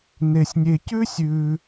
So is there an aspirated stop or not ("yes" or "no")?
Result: no